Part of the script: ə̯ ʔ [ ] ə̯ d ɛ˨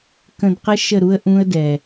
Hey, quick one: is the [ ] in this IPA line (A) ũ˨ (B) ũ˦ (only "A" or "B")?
B